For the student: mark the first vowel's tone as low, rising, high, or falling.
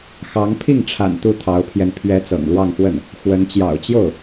rising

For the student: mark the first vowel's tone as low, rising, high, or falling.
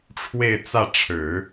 falling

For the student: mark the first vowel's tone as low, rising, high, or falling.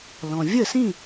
low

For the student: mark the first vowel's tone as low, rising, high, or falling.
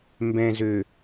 low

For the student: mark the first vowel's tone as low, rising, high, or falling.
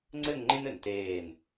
falling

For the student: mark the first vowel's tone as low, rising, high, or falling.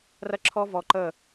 high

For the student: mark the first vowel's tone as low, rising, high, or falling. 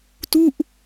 falling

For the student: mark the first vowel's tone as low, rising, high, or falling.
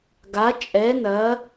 rising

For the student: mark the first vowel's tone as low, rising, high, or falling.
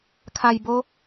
low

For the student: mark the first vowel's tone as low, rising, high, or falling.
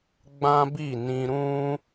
high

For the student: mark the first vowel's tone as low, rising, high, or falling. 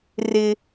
high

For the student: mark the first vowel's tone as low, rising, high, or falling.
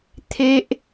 high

